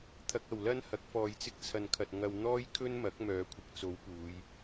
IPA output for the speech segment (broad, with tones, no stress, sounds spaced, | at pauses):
t̪ʰ ɐ˧ k̚ ɐ˨ w l ɐ˥ n h ɐ˨˥ k̚ f ɔː˨ j t͡s ɪ˧ k̚ t͡sʰ ɐ˨ n kʰ ɐ˨ t̚ ŋ ɐ˧ w n̪ ɔː˥ j kʰ ɵ˥ n m ɐ˨˥ k̚ m œː˨˧ kʷʰ ɪ˨ k̚ t͡s o˨˥ w p uː˨˧ j